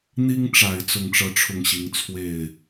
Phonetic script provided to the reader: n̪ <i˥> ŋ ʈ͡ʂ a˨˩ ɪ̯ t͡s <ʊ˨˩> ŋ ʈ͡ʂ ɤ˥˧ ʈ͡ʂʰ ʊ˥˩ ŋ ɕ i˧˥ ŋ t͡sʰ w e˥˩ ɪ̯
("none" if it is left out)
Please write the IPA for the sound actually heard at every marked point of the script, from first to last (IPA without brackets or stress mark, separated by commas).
i˥, ʊ˥˧